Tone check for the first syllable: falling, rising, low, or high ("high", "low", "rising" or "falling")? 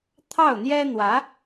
falling